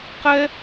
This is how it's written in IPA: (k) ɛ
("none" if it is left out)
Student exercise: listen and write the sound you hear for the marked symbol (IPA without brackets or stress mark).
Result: q